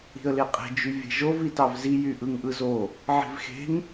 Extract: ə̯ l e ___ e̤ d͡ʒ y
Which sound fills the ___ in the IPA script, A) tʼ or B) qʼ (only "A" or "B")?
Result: B